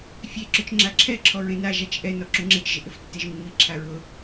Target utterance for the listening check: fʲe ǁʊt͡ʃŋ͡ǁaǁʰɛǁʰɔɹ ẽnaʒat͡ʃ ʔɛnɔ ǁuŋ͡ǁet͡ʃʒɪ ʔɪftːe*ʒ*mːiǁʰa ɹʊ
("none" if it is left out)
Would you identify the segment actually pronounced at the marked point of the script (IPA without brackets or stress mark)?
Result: ʒ